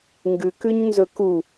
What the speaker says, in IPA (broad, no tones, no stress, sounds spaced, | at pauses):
ŋ ɡ ʉ k ʉ ɲ n z ɵ k u